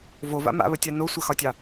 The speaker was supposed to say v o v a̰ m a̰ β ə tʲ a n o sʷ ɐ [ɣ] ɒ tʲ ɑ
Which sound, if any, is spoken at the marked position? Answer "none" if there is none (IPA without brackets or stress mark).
x